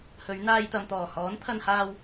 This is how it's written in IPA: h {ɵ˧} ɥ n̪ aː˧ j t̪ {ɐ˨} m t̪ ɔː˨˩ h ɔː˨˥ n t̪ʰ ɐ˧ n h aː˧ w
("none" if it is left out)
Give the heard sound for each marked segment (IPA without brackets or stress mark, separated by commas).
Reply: ɵ˨˧, ɐ˨